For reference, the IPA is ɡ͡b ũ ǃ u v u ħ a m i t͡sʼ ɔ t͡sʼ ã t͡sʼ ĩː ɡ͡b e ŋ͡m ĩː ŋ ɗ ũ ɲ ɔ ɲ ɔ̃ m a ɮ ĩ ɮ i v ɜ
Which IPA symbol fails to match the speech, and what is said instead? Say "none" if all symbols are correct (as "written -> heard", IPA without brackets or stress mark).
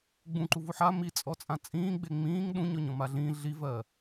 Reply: none